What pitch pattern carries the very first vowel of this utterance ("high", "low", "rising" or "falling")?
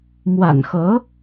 low